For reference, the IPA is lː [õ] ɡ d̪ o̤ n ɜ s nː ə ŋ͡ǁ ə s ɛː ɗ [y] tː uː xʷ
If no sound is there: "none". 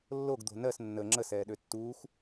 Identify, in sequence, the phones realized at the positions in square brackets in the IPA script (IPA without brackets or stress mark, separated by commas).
o, ø